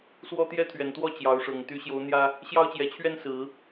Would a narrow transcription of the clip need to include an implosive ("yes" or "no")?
no